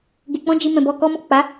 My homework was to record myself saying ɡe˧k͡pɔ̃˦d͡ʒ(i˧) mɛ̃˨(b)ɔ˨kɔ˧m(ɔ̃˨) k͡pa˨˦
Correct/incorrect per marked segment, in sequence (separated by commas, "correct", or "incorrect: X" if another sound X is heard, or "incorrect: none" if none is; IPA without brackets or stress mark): correct, correct, incorrect: ɔ˨